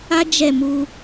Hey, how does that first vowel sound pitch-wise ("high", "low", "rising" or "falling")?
high